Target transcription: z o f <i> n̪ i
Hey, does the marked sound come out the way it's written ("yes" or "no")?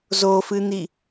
no